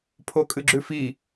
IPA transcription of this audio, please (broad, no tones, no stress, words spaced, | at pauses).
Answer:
pʰokʼɨɡ͡ǁʉfi